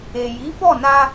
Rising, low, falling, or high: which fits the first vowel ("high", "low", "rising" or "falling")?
low